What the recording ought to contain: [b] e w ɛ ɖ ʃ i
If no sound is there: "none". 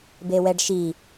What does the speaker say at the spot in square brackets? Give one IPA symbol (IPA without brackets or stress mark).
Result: b